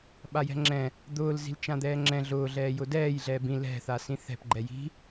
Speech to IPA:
ɓ a j ɛ̤ ŋ͡ǁ ɛ̃ | d̪ ʊː l z i̤ l t͡ʃ ã d̪ ɛː ŋ͡ǁ ɛ̃ ɮ ʊː ɮ ɛː j ʊ d ɛː j ɮ ɛː b ĩ l ɛ̤ θ a s ĩ θ ɛ̤ p ɡ͡ǃ ɛ j i̤

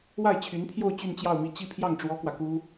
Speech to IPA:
w a˥˩ ɪ̯ t͡ɕʰ y˧˥ n pʰ j o˥˧ ʊ̯ t͡ɕ y˥˧ n t͡ɕ j ɑ˥˧ ʊ̯ m i˥˧ t͡ɕ i˥˧ pʰ j ɑ˥˩ ŋ ʈ͡ʂ w ɔ˥ k w ä˨ k u˥

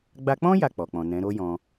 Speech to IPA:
ɡ͡b a˧ k͡p ɔ̃˦ j a˦˨ k͡p ɔ˨ k͡p ɔ̃˨ n ɛ̃˨˦ ɾ o˦ j ɔ̃˧

